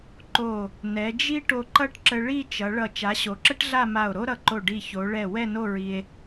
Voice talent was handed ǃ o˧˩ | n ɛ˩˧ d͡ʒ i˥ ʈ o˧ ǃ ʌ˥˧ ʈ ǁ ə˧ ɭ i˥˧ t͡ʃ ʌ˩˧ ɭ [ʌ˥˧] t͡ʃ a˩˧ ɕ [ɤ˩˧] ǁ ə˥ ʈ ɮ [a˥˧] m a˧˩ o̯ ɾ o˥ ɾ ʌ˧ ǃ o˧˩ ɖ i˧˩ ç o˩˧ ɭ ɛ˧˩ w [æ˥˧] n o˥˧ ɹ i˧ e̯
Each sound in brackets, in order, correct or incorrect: incorrect, incorrect, correct, incorrect

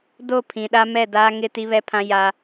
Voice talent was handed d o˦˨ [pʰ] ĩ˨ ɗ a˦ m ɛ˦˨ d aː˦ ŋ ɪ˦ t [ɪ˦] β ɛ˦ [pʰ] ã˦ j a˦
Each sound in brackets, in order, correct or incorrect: correct, incorrect, correct

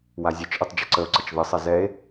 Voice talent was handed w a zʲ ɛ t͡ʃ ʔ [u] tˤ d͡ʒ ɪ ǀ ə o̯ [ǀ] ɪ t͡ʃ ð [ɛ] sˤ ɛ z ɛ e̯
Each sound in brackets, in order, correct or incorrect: incorrect, correct, incorrect

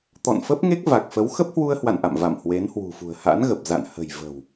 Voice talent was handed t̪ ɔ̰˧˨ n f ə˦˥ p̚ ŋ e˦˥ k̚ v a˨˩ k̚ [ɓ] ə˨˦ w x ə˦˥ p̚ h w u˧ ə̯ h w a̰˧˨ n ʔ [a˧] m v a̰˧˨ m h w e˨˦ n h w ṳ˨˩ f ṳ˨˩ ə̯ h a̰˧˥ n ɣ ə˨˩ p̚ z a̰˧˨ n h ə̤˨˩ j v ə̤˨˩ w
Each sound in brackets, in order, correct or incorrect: incorrect, incorrect

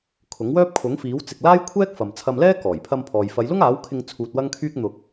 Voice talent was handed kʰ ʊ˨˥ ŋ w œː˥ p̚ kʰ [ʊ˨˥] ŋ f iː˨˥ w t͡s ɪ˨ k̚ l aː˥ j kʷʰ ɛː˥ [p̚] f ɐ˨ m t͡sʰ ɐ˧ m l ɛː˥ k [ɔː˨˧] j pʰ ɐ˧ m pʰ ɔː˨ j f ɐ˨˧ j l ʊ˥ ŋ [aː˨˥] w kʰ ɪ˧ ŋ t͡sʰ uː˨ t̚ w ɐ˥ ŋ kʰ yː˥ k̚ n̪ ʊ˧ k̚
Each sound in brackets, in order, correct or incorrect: correct, incorrect, incorrect, correct

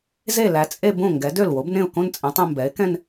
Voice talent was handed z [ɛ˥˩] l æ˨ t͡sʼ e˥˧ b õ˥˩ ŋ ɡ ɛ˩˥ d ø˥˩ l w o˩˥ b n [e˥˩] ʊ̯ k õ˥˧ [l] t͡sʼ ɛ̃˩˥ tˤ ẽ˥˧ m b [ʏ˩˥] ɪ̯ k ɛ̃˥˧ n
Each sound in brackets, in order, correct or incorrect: incorrect, incorrect, incorrect, incorrect

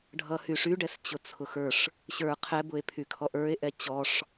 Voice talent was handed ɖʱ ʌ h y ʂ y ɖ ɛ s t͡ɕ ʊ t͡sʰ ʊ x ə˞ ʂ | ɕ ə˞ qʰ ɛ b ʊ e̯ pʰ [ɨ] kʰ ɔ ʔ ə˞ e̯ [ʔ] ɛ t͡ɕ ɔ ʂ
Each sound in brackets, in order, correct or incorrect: incorrect, correct

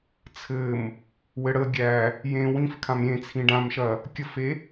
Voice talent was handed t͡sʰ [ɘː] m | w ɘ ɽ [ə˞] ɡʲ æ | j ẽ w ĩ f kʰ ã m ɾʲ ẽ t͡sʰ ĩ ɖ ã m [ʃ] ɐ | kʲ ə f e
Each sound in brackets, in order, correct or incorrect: incorrect, incorrect, correct

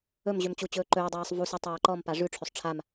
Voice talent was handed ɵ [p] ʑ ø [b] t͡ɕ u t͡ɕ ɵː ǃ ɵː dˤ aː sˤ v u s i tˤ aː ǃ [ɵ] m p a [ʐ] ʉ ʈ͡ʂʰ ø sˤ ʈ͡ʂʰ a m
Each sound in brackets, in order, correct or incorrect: incorrect, incorrect, incorrect, correct

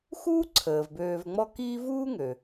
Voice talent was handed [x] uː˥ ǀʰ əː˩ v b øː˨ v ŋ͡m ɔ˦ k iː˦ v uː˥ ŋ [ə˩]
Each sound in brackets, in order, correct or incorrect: correct, incorrect

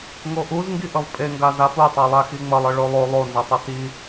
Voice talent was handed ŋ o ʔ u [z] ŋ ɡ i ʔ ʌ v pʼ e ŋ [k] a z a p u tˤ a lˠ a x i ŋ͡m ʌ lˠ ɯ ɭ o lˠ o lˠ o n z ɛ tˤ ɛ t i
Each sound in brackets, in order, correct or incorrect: correct, incorrect

